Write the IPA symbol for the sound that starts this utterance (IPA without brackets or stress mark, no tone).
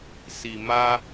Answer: s